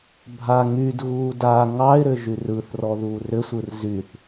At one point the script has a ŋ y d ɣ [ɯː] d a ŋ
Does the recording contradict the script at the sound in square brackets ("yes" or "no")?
yes